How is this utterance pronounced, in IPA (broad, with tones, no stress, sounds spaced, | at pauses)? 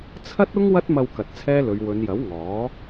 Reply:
t͡sʰ ɐ˥ t̚ ʊ˥ ŋ w ɐ˥ t̚ m ɐ˧ w k ɐ˨ t̚ t͡sʰ ɛː˥ l ɵ˨˧ ɥ w ɵ˨˧ n j ɐ˨˥ w ŋ ɔː˨˥